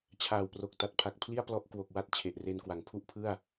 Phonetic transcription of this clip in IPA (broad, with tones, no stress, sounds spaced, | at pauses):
t͡ɕʰ aː˨˩ w p r o˨˩ k̚ t a˨˩ t̚ pʰ a˨˩ k̚ pʰ l i˥˩ a̯ p l ɔ˦˥ ʔ k w o˨˩ k̚ w a˥˩ t̚ t͡ɕʰ e˨˩ ʔ r e˧ n k w a˨˩ ŋ pʰ u˥˩ ʔ pʰ ɯ˥˩ a̯